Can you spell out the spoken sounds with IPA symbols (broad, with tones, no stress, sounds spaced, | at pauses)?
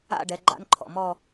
a̰˥˧ ɖ ɛ˨˦ ɡ͡ǃ a̰˦˥ n ǃʰ ɔ̰˩˧˩ m ɔ˥˧